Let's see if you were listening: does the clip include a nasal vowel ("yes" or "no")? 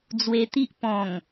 yes